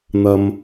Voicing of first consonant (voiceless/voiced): voiced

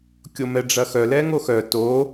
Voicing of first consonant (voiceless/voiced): voiceless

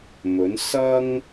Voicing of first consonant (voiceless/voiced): voiced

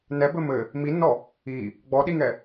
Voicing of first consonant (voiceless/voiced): voiced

